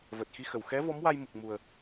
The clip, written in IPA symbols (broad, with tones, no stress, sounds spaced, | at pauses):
v əː˨˩ t̚ x i˧ x ə˨˩˨ w x ɛ˧˥ v ɔ˧˥ m w a˧ j m u˨˩ k̚ m u˨˩ ə̯